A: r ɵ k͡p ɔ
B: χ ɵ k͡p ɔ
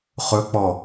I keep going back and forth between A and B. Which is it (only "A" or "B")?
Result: B